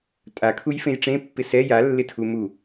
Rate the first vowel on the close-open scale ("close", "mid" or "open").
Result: open